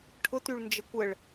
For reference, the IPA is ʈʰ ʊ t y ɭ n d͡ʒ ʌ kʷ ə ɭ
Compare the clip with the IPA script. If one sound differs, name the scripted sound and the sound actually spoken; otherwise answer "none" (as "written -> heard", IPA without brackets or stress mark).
ʌ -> ə